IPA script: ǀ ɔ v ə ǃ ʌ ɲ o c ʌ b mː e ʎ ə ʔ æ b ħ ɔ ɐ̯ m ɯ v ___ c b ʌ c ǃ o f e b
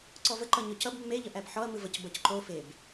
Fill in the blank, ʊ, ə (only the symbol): ə